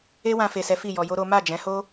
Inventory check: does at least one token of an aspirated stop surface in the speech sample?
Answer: no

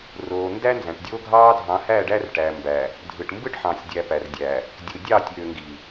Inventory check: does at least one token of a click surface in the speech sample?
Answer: no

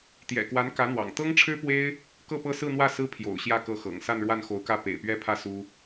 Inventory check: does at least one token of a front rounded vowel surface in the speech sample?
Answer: no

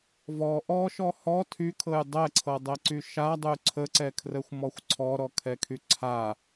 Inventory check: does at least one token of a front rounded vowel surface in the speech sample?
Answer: yes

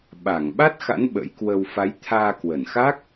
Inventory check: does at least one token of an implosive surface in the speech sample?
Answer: yes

